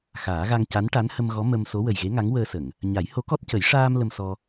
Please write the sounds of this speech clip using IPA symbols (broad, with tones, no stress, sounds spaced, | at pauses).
x aː˨˩˦ ɣ a˧ ŋ c a˧˥ n ʈ a˧˥ n h ə˧ m ɣ ɔ˧˥ m ə˧ m s o˧˥ w ə˨˩ j ɣ e˧˥ ŋ a˧˥ ŋ w əː˧ s ə˨˩˨ ŋ | ɲ a˨˩˦ j h o˧˥ k ɔ˦˥ t̚ c ə˨˩˦ j ʂ aː˧ m l ə˧ m s ɔ˧